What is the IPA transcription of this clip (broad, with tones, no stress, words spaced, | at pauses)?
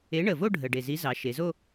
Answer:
e˨˥ɳə˨˩vo˥˧ ɖʱə˨˩ ɖe˨˩zi˨˥ zɑ˩˧ ʃe˩˧zo˥˧